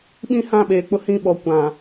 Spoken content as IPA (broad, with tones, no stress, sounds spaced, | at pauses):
ɓ ĩ˦ h ã˦˨ ɓ eː˨ k͡p ʊ˦ h ĩ˦˨ ɓ ɔ˨ kʷ ã˨